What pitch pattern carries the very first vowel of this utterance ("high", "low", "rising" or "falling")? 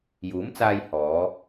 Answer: rising